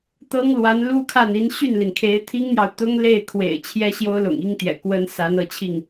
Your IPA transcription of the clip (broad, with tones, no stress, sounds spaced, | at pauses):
t̪ ɤ˥ ŋ l w a˧˥ n l u˥ kʰ a˥˩ n i˧˥ n ɕ y˥˩ n l i˩ n kʰ e˧˥ ɪ̯ t̪ʰ i˥ ŋ n̪ j ɑ˨ ʊ̯ t̪ ʊ˥ ŋ l e˥˩ ɪ̯ kʰ w ḛ˨˩ ɪ̯ t͡ɕʰ j ɛ˥ ɕ j o˥ ʊ̯ l ʊ̰˨˩ ŋ i˥ ŋ t̪ j ɛ̰˨˩ k w ə˥ n s a˧˥ n ɤ˧˥ t͡ɕʰ i˥˩ ŋ